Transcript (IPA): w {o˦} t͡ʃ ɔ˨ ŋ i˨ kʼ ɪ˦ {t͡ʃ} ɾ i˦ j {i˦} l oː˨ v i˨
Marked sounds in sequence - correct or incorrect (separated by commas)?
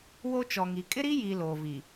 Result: correct, incorrect, incorrect